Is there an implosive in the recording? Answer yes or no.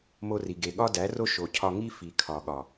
yes